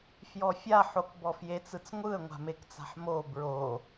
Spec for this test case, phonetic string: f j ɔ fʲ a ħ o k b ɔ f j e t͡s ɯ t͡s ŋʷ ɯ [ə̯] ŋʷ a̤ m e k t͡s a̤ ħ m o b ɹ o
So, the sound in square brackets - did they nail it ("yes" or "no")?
yes